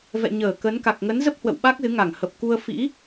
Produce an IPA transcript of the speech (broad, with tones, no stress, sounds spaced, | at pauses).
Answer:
v ɛ̰˧˨ ɲ əː˧˩ k ə˨˦ n k a˨˩ k̚ ŋ ə˨˦ n z ə˦˥ p̚ h w ə̰˧˨ w ɓ a˦˥ k̚ z ɨ˨˦ ŋ a˧˩ ŋ h ə˨˩ p̚ k u˧ ə̯ f ḭ˧˥